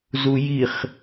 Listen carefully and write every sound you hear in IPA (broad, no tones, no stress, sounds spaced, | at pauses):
z u j i χ